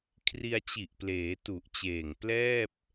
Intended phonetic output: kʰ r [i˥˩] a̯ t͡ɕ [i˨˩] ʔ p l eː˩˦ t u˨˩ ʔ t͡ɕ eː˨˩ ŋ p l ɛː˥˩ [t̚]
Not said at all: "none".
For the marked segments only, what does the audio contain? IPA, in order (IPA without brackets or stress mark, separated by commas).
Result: i˧, i˨˩, p̚